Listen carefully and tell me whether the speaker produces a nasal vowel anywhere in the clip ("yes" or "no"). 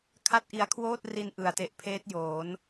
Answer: no